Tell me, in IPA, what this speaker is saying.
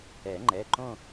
ɛ˨˩˦ ŋ͡ǃ ɛ˩˧˩ ǃ õ˥˧

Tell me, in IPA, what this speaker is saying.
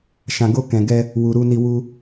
ʃ ã˨ ɡ o˧ k ɛ̃˨ ɡ ɛ˧ | w u˨ ɾ u˧ n i˧ w u˧

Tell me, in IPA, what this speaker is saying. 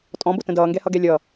tʼ ɔ̃ b ʊ t ə̃ d ʌː ŋ ɡ ɛ h ʌ ɡ ɛ lʲ ʌ

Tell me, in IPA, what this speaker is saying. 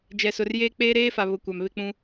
d͡ʒ ɛ˨ s ʊ˨ r j eː˦ k͡p eː˦ ɾ eː˦ f a˨ β ʊ˨ kʷ a˨ m β ɪ˦ k͡p ũ˦

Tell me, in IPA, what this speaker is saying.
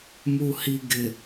m u h i ɡ ɪ

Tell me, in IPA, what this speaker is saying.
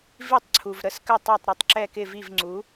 v i˥˨ tˤ ǀʰ u˩ v ɾ ə˥˨ s k ə˥˨ tˤ a˥˨ tˤ ɾ u˩ tˤ ǁ ɛ˥˨ k ɪ˥˨ v i˥˨ v ŋ͡ǀ u˩˥

